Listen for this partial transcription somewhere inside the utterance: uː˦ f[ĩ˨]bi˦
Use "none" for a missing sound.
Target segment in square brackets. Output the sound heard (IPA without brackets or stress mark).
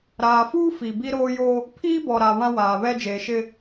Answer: i˨